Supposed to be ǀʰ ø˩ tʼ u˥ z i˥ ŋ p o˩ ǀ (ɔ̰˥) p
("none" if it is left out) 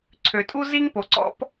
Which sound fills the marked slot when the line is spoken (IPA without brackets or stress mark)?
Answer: ɔ̰˥